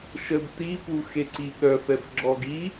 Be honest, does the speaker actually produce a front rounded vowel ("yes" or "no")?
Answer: yes